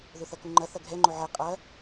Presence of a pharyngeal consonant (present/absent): present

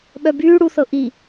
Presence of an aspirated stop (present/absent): absent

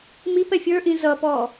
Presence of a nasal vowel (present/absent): present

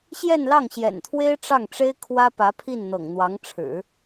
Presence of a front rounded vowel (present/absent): absent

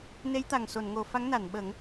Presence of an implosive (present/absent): present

